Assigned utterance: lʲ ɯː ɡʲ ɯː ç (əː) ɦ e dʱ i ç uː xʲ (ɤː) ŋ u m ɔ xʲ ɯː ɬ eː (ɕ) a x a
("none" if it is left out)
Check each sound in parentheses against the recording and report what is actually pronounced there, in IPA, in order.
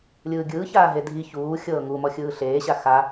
aː, ɤː, ɕ

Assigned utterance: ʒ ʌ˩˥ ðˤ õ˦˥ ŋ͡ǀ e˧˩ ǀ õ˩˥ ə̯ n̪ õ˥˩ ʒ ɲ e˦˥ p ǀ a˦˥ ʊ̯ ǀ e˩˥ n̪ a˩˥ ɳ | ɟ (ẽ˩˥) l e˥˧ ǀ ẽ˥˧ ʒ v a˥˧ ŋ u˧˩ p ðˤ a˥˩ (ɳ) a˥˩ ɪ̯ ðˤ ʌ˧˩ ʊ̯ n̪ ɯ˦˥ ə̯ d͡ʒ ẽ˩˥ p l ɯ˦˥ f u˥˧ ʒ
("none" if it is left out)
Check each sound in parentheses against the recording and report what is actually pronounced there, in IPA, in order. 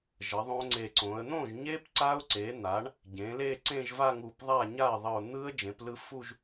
ẽ˩˥, ɲ

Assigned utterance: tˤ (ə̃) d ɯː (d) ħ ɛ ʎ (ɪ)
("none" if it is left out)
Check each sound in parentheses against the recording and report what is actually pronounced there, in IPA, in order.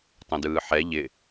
ə̃, none, ɪ

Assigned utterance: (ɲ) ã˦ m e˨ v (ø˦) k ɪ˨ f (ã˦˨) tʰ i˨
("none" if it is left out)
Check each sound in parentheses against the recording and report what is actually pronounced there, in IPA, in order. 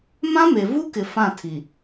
m, u˦, ã˦˨

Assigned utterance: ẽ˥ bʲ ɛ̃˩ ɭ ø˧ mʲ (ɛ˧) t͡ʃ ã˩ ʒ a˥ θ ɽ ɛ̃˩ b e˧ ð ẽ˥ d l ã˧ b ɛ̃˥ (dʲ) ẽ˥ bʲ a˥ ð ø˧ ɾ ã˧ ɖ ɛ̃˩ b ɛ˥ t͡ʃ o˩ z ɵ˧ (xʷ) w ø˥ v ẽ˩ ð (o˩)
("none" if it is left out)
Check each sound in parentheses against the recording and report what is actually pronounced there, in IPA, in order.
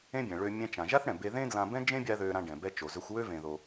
ɛ̃˧, d͡ʒ, xʷ, o˩

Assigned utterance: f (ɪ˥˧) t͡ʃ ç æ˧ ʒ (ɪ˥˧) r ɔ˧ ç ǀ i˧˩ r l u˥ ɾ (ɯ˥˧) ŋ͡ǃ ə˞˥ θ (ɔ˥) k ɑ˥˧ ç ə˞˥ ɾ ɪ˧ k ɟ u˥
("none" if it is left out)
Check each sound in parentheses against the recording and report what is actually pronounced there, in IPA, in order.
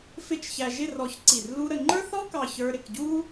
ɪ˥˧, ɪ˥˧, ə˥˧, ɔ˥

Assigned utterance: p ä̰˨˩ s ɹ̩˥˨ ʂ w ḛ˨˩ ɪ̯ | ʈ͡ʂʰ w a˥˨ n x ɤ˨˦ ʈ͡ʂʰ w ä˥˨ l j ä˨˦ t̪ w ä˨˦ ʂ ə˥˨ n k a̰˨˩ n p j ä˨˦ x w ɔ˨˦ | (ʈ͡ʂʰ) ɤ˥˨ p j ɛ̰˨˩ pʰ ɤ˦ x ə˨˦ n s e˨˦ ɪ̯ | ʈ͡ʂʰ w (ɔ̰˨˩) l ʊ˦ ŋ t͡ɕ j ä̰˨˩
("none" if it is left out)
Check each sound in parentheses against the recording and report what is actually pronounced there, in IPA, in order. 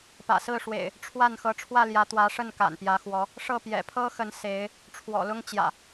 ʂ, ɔ̰˨˩

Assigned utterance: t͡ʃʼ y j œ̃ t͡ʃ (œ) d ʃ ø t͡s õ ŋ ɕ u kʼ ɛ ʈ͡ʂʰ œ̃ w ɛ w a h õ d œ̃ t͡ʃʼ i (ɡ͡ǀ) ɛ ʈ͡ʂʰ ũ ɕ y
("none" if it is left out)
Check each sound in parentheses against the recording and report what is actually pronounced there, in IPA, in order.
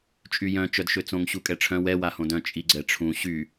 œ, ɡ͡ǀ

